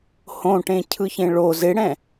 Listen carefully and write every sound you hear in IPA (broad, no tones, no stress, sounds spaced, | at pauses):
h õ ʈ ẽ cʰ ɯ ç ẽ ɭ o z ɪ ɽ ɛ̃